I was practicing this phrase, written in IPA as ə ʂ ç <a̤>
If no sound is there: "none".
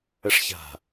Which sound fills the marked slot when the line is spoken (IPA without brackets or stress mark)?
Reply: a̤